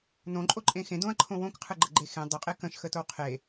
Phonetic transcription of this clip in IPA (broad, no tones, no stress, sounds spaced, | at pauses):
n õ ǃʼ o ǃʼ ẽ x ẽ d õ ɐ̯ ǃʰ õ w õ k qʰ ɯ ɡ͡ǃ ə ɡ͡ǃ e x ẽ dˤ ə qʼ e k ə̃ ʃ x ə t o w qʰ e